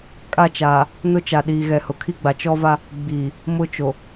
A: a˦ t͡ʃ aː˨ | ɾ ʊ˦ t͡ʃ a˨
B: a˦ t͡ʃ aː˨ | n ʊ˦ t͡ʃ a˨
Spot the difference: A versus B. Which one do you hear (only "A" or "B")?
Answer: B